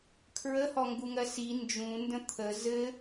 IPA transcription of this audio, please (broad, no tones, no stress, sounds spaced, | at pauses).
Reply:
kʰ ɹ ə h ɔ ŋ ɡ u ŋ ɜ s i n d͡ʒ ũ n d ə̃ t̪ʰ ə z ɘ